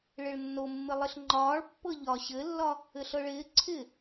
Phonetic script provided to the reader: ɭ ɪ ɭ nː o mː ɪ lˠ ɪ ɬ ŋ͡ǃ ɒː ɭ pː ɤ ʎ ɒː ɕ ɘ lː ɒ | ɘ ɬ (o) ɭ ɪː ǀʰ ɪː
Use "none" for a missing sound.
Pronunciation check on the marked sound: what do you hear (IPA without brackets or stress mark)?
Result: ɤ